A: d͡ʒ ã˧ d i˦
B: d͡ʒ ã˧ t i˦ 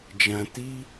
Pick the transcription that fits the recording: B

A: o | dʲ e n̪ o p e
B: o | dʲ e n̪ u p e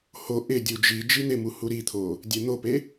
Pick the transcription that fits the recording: A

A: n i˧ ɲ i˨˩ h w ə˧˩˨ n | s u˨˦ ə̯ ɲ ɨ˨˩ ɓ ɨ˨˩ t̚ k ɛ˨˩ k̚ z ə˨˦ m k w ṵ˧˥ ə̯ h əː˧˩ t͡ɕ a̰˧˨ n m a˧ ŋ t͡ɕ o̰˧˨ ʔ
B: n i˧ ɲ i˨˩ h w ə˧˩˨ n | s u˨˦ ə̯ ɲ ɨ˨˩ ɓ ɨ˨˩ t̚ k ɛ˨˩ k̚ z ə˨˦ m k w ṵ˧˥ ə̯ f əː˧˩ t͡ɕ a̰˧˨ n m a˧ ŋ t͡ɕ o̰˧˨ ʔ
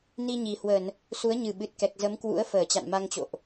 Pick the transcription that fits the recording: B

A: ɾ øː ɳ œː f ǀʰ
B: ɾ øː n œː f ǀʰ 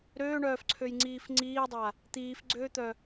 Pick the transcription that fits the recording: A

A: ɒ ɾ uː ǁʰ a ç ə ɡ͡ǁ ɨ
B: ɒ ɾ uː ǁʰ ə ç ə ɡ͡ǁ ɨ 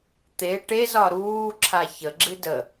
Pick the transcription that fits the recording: A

